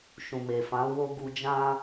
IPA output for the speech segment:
ʃ ũ˨ m e˨ f ã˨˦ w o˧ ɡ u˧ d͡ʒ ã˦

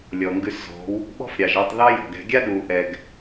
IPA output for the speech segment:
lʲ ɔ˨ ŋ ɡ ʉ˧ s z ɔ̤˨˦ w | ɓ ɔ̤˦ f ɾʲ ɑ˨ ʒ ɑ˧ tˤ ð ɑ˦ j ɔ̤˨ ɡ ɛ̤˧ ɡʲ a˦ ɗ uː˨ ʔ ɛ˨ ɡ

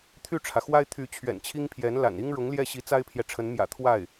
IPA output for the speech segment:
t̪ʰ y˥˩ ʈ͡ʂʰ ä˩ x w a˥ ɪ̯ t̪ʰ y˧˥ t͡ɕʰ ɥ ɛ̰˨˩ n t͡ɕʰ i˥ ŋ pʰ j ɛ˧˥ n l a̰˨˩ n i˥ ŋ ɻ ʊ˧˥ ŋ l j ɛ˥˩ ɕ i˧˥ t͡s a˥ ɪ̯ pʰ j ɛ˨ ʈ͡ʂʰ ə˧˥ n m j ä̰˨˩ t̪ʰ w a˥˩ ɪ̯

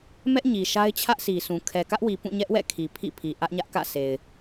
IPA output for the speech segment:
m ɛ˦ ʔ ɲ i˨ ʃ a˦ ɪ̯ t͡ɕʰ ä˦ ʔ sʰ i˨ sʰ ũ˨ kʰ ɛ˨ k ä˦ ʔ w i˨ p ũ˦˨ ɲ ɛ˦ ʔ w ɛ̰˦˨ kʰ i˨ pʰ ḭ˦˨ pʰ i˨ ʔ ä˦ ʔ ɲ ä˦ ʔ k ä̰˦˨ sʰ e˨ ɪ̯

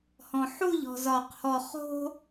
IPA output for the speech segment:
h ɔ̃ ħ u ʎ ɔ̤ z ɒ q h ɔ χ o̤

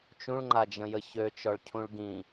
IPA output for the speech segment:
t͡ʃ ũ ɭ ŋ͡ǃ a d͡ʒ ə̃ j ə ç ø t͡ʃ ɔ ɭ cʰ ũ ɭ ɡ ĩ

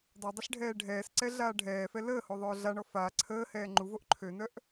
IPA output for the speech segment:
dˤ o dˤ ə ɬ ɖʱ ɛː ɖʱ ɛː s ǀ ɛ ɮ aː ɖʱ ɛː f ɛ l əː h o ðˤ œː ɮ a ɳ ɔ f a ǀʰ əː h ɛː ŋ͡ǃ u v o ʔ ǃʰ ø n œ ʔ

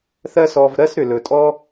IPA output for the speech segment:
θ ɜ˦ s ɔ˧ v ɾ ɜ˦ s ɾ ʏ˨ l ɵ˨ tʼ ɔ˦

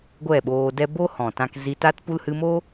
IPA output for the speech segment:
ɡʷ ɛ˦˨ ɓ oː˧ d ɛ˦ b o˦ h ɔ̃˨ t ã˧ k z i˧ t a˦ t p u˦ l h ɨ˧ m o˦

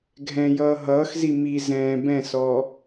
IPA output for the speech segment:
ɡʱ ɛ̃ j ʌː ɦ ʌː x z i m i z ɛ̃ː b ɛ̃ s ɔː

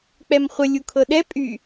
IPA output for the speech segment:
k͡p ɛ m χʷ ə lʲ u kʰ ɤ ɗ ɛ pʼ y

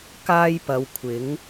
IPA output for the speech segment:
k aː˥ j p ɐ˨˧ w kʷʰ ɪ˨˥ ŋ

